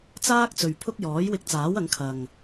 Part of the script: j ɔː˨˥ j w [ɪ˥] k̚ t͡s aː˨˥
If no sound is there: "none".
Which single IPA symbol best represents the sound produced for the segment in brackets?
ɪ˧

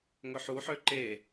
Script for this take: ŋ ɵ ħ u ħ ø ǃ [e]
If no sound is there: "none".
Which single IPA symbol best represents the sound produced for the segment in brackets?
e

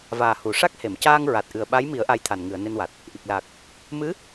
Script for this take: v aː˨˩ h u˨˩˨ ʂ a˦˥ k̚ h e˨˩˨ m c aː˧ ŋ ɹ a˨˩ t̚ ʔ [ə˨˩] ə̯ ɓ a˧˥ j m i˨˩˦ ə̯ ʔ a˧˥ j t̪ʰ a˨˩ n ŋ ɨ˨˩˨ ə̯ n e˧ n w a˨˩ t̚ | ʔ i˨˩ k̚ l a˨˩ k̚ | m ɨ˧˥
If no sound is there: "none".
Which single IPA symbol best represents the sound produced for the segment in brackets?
ɨ˨˩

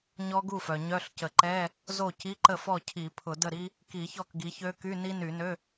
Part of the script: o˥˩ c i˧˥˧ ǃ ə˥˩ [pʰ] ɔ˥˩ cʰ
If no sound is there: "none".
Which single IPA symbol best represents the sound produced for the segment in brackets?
f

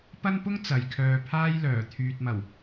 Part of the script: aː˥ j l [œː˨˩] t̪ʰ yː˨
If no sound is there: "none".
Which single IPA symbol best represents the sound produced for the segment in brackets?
œː˨˩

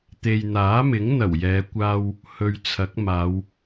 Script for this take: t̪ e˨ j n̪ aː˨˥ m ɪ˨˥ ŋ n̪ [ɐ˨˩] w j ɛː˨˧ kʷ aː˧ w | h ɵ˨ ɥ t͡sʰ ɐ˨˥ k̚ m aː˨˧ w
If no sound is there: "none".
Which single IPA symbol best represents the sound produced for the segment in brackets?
ɐ˨˩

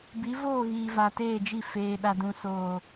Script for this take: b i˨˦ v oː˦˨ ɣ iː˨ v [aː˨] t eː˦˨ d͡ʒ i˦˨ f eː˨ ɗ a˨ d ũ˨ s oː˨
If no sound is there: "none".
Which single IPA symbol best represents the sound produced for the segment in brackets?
a˨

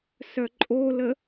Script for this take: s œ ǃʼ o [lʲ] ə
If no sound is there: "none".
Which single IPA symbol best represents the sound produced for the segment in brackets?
l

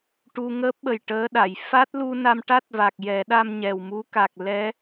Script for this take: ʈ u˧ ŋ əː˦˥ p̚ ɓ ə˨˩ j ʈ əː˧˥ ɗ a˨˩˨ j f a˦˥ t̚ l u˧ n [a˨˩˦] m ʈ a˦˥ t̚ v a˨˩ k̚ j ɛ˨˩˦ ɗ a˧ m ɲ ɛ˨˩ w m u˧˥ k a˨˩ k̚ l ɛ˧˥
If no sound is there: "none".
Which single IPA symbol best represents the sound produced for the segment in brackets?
a˧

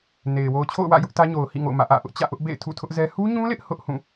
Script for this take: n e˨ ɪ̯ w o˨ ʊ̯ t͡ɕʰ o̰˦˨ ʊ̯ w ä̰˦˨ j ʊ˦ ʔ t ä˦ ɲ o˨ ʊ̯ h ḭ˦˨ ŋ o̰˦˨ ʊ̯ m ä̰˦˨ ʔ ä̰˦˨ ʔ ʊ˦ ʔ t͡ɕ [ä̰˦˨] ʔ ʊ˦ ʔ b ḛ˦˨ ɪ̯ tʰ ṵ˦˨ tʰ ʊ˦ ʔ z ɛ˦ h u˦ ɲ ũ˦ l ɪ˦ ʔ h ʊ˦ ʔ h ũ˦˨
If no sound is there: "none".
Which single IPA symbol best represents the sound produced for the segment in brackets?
ä̰˦˨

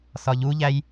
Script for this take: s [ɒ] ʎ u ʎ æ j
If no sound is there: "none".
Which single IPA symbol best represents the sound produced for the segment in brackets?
ɒ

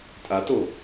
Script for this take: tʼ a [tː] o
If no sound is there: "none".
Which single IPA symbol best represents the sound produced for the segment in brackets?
t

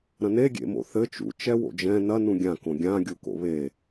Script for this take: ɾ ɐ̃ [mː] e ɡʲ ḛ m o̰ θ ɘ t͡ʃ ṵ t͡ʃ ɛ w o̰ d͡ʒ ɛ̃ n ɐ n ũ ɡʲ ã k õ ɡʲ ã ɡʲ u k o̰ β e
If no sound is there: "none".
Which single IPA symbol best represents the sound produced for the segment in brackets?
n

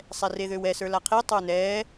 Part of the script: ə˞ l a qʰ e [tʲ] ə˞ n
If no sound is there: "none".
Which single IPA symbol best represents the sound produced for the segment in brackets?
tˤ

